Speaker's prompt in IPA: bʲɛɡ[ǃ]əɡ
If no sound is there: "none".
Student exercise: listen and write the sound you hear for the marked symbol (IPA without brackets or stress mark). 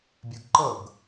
ǃ